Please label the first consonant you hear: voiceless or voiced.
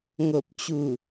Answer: voiced